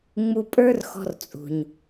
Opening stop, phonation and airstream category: ejective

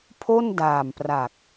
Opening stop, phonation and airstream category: aspirated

